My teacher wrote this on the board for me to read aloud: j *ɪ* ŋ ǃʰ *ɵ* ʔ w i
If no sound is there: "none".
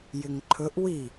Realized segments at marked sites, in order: ɪ, ɵ

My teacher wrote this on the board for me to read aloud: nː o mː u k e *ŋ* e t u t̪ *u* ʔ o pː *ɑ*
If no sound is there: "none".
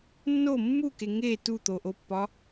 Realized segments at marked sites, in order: ŋ, o, ɒ

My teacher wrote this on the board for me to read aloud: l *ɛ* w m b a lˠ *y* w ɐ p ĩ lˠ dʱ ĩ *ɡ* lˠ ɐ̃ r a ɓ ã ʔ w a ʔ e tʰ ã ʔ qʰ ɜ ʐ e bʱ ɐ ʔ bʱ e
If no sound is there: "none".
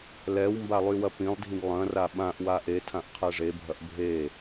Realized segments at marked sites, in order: ɛ, y, ɡ

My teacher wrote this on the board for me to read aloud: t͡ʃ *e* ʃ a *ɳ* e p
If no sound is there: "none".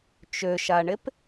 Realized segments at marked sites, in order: ø, ɳ

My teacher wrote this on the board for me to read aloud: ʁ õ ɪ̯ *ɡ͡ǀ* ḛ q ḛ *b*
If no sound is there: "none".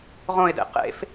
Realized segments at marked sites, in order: d, f

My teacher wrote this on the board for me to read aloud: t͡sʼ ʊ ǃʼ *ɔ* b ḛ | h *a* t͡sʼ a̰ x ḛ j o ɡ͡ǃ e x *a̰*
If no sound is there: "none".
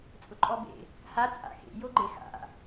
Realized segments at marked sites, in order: ɔ, a, a̰

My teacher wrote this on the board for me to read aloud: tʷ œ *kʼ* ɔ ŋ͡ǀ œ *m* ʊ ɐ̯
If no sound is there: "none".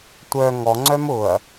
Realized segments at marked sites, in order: ŋ, m

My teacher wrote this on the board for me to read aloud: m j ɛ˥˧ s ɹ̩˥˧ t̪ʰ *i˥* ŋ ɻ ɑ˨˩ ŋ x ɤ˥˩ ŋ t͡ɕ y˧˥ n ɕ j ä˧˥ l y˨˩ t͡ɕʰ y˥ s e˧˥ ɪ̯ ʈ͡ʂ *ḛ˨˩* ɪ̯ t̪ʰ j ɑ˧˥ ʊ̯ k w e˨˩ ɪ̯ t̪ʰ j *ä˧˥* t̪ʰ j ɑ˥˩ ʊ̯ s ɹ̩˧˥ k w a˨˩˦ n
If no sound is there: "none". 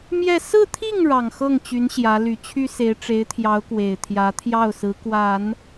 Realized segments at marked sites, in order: i˥˩, e˧˥, ä˧˥

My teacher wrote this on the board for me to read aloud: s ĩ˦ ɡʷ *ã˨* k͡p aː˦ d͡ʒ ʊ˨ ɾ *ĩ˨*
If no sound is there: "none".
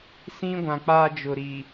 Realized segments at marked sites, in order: ã˨, i˨

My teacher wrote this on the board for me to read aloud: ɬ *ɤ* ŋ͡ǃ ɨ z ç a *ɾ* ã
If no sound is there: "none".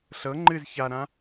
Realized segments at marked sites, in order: ɤ, ɾ

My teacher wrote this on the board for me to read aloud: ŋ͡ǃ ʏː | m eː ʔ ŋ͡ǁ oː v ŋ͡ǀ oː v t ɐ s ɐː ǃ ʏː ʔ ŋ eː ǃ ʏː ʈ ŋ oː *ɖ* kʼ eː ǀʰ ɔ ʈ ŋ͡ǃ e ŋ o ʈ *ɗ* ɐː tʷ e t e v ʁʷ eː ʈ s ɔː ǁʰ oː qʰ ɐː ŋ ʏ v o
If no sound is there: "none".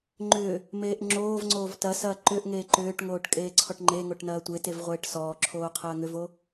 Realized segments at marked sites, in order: ʈ, n

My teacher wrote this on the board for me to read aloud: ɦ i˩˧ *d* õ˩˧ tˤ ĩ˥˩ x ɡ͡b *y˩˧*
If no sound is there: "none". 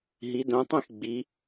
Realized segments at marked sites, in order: d, i˩˧

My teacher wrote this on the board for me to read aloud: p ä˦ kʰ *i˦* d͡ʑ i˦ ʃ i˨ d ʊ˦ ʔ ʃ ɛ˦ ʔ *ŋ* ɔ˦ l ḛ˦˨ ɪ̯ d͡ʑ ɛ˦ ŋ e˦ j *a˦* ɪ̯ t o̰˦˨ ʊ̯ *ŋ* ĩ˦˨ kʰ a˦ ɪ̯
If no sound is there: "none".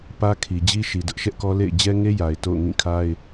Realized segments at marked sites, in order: i˨, k, a˨, ŋ

